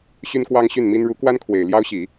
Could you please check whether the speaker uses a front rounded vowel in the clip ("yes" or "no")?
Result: yes